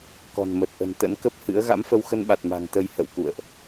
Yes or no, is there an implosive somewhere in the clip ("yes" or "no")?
yes